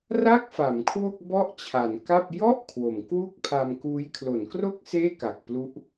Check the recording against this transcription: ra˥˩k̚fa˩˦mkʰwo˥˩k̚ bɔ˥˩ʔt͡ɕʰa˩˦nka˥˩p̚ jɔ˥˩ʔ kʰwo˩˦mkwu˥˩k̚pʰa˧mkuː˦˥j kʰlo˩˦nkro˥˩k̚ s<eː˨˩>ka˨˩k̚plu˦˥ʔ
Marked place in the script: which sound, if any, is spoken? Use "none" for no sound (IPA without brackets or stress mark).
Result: eː˥˩